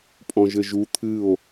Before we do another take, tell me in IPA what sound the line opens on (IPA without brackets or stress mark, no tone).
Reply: pʼ